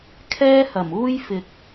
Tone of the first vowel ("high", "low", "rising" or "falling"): high